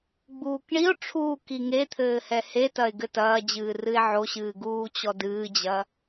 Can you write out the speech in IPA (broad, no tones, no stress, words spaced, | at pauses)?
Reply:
ɡ͡buːkɳio̯ʈ͡ʂʰuː kiŋet̪ʰɘː hɛhetɐe̯ ɡɘtɐːd͡ʑɨː rɨe̯ʕoɕɨː ɡuːt͡ɕɔdɨːd͡ʑɐ